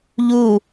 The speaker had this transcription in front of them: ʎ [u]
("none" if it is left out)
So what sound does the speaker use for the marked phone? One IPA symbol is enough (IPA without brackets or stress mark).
u